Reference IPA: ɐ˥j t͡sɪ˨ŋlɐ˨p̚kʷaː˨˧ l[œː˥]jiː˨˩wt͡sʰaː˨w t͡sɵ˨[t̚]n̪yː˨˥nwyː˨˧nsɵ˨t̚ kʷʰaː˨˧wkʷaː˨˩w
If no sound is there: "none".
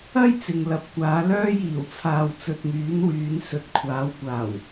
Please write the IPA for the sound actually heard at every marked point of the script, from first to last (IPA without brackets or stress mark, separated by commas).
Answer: œː˥, t̚